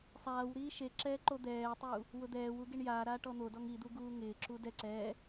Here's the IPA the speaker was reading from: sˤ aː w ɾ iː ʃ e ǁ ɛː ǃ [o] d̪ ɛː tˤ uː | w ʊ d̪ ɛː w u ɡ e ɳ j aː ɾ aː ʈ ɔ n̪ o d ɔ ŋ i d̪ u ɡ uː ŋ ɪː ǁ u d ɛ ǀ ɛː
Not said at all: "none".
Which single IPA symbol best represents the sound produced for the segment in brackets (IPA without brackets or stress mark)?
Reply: o